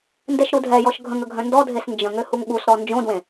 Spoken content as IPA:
n d ɛ ʃ ɾ u dʱ ɛ j ɔ ʃ ɡʱ ə̃ ŋ ə ɡʱ œ̃ n d ɔ dʱ e s n d͡ʒ ə̃ ŋ ø h u ŋ ɠ u s ɾ ɔ n d͡ʒ õ d w ẽ

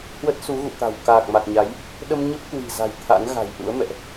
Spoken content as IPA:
h w ə˦˥ t̚ s u˨˦ ɣ ṵ˧˨ t̪ a̤˨˩ w k aː˨˩ k̚ m a˨˩ k̚ ɲ a˨˦ j | ɗ ə˧ m ɲ ə˦˥ p̚ k w i̤˨˩ z a̤˨˩ j t̪ʰ a̰˧˥ n ɣ a̤˨˩ j ʔ ṵ˧˥ ə̯ m ɛ̰˧˨ ʔ

